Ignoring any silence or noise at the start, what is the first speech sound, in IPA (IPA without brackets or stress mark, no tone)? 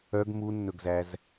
œ